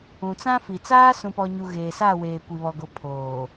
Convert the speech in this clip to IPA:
ũ˨t͡sã˦fi˨ t͡saː˦sũ˨pɔ˨ɲu˨ ɣeː˨sa˦˨weː˨ kʷi˨βɔ˨ɡo˨pʰoː˨

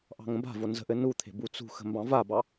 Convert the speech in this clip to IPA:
ʔɑ̤ŋə̃ba̤vo nzə̤ʔɘ nut̪ʰe̤ but͡sṳxə̤ mbɑ̃vabɑ

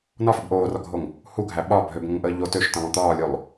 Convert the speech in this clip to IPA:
nɒfub ʔoːrɒɡʱoŋ | huɡʱæ ɓɒ bʱøbŋə̃ŋʔəː ʎo tøʃtə̃lˠõ t̪ɒːlʲolˠ

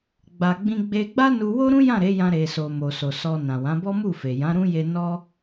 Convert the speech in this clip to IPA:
ɡ͡ba˨ɡ͡bĩ˧ɡ͡be˧ ɡ͡ba˦nu˧wo˦ɾũ˦ jã˦˨ ɾe˨˦jã˧ɾe˨so˨ mo˨so˨sɔ˧nã˨ wã˨˦bɔ˦mu˦˨fe˨ jã˨˦ɾũ˦je˧ nɔ˦

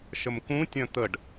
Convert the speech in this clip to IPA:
ʃəmkũtʲœ̃ t̪əɖ

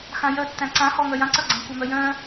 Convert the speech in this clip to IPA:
xãjœtːæ̃ ǀãhɔ ŋœjãǀœ ɡ͡ǀæ̃kʷœmœjœ̃

